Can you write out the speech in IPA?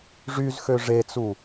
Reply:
ʐyzxø ʐet͡su

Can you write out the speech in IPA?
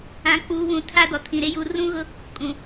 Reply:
ã˨k͡puː˨ βũ˨tʰa˦dɔ˨ tʰĩ˨ɾe˦ju˨˦ rũ˦ɣʊ˦ | kʼũ˨

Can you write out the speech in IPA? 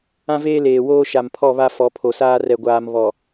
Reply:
ã˦veː˦ leː˨woː˦ ʃa˨mpʰɔ˦˨βa˦ fɔ˨˦pʰo˨saː˦ rɛ˨ɡʷaː˨m βɔ˨

